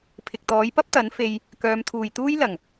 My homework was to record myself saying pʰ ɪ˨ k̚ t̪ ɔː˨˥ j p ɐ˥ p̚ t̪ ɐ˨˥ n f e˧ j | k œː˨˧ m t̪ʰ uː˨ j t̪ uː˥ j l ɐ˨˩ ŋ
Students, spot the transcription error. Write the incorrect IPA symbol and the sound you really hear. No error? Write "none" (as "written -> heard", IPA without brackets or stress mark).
none